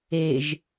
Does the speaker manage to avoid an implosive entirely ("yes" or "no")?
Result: yes